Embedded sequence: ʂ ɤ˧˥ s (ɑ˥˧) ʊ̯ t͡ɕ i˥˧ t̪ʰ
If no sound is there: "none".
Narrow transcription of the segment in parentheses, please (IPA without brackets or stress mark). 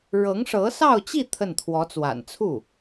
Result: ɑ˥˧